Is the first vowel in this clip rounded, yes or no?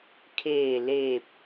no